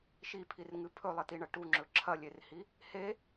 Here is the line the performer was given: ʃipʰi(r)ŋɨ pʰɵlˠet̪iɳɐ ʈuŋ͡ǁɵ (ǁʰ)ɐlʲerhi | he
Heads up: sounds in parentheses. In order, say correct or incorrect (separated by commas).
correct, correct